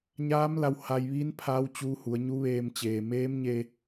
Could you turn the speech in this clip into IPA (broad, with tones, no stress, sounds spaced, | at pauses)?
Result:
ɲ aː˧˥ m l a˧ w h a˧ j ʋ iː˧˥ n pʰ aː˧˥ w t͡ɕ uː˧ h u˩˧ ə̯ ɲ u˧˥ ʋ eː˧ m t͡ɕ eː˩ m eː˧˥ m ɲ e˧